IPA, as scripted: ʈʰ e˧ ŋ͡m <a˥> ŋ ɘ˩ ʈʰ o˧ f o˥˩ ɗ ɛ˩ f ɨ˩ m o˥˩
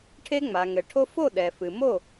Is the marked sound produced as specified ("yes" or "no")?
no